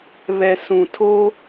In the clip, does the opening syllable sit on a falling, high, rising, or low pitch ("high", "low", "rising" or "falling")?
low